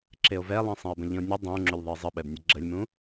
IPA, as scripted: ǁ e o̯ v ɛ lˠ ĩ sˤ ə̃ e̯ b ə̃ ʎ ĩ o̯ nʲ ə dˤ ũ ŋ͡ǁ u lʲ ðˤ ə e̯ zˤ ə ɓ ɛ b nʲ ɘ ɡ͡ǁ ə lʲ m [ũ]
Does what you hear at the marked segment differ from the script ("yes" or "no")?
no